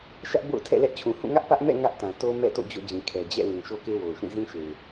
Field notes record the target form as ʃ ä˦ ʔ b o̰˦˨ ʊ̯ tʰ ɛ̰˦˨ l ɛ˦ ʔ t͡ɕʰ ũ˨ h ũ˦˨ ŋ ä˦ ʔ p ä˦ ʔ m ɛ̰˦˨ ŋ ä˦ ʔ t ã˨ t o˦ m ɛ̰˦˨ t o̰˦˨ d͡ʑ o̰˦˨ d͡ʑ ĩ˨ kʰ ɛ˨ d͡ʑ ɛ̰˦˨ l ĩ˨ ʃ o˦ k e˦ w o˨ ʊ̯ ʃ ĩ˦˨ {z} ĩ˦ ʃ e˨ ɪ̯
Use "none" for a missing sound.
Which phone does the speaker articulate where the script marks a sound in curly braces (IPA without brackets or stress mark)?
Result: z